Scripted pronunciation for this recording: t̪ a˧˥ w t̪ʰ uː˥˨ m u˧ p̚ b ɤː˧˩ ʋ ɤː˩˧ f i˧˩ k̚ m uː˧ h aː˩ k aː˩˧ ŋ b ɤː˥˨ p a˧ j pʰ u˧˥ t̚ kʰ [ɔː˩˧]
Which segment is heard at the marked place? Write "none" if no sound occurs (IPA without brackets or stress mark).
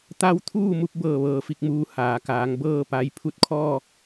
ɔː˥˨